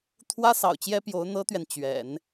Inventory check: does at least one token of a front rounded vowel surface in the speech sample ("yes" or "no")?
no